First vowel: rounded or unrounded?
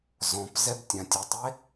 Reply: rounded